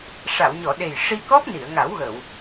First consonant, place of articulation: retroflex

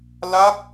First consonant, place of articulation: alveolar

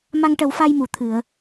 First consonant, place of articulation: labial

